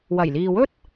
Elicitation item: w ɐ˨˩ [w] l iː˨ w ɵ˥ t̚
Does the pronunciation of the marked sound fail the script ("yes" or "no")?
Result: yes